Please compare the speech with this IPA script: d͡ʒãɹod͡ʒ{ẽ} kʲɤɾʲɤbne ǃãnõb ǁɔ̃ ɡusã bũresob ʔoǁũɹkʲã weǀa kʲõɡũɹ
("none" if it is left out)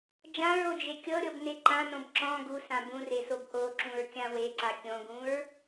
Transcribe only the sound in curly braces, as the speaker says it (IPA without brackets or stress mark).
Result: e